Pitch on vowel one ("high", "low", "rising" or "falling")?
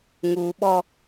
low